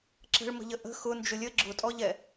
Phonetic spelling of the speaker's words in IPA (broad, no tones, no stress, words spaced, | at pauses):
ǁə̤ɭmə̤ʎə ʔə̤ xʊnd͡ʒʊ lʲə ɡ͡ǁʊtʼɔʎɛ